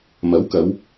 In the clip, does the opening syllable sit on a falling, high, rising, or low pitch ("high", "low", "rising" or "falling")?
rising